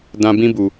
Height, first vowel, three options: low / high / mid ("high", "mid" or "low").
low